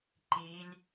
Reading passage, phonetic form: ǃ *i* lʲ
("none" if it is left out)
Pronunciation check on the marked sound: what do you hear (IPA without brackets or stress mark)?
i